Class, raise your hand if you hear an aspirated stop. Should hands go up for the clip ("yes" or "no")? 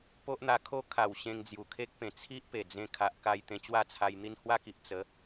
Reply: yes